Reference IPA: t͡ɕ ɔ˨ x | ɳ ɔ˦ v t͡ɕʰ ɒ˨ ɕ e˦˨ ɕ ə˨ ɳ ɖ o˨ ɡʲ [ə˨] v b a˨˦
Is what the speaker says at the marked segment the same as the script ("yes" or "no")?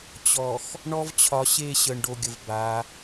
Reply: yes